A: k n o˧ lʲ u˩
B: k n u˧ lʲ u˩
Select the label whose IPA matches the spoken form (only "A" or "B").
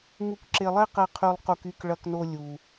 A